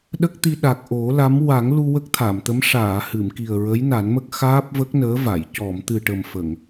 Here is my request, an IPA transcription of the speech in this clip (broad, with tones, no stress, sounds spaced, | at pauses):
ɗ ə˦˥ k̚ t̪ i˧ ɗ a˨˩ k̚ ʔ o˨˩˦ l a˧˥ m w a˨˩˦ ŋ l u˧ w ə˦˥ k̚ t̪ʰ a˨˩˨ m t̪ ə˧˥ m ʂ aː˨˩˨ h ɨ˨˩˨ m k i˨˩ ə̯ ɹ ə˧˥ j n a˨˩˦ n m ə˦˥ k̚ x aː˦˥ p̚ v ə˦˥ k̚ n əː˧˥ v a˨˩˨ j c ɔ˨˩˨ m t̪ ɨ˨˩ ʈ ə˨˩ m f ə˨˩˨ ŋ